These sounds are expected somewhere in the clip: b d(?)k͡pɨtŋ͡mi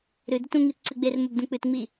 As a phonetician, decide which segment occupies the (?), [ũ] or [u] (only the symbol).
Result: ũ